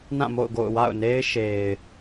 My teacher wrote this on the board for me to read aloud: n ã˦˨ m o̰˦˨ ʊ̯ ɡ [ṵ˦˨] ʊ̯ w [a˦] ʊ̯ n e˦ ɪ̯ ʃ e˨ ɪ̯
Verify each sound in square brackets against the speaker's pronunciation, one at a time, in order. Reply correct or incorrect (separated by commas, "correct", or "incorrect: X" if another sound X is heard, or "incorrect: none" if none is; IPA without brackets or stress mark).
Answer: incorrect: o̰˦˨, incorrect: a̰˦˨